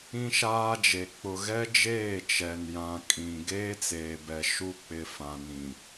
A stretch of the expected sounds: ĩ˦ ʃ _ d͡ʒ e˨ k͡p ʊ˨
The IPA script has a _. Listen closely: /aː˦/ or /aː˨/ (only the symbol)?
aː˦